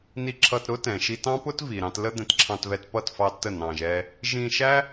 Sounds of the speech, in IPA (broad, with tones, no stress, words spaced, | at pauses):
ni˧ǁʰʌ˧t ɾʊ˦tɛ̃˨ʃi˧tɑ̃˦ pʊ˦tvi˨ɾɑ̃˧t lə˦d̪ɛ̃˧tǁʰɑ̃˧tvɛ˧t pʌ˦˨tfɑ˧ tə˦˨ nɑ̃˧ʒɛ˦ | ʒĩ˧ʃæ˦